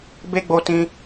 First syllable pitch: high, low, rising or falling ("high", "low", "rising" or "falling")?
high